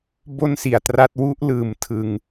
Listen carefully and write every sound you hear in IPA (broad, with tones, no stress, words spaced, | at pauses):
bo˥˩nsi˩˦a̯tra˦˥t̚ wu˦˥ʔlɯː˩˦m tʰɯ˨˩ŋ